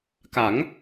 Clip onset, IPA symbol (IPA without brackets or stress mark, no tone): k